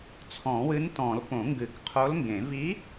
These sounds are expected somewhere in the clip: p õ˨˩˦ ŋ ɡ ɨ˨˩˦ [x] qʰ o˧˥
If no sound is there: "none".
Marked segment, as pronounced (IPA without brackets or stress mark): k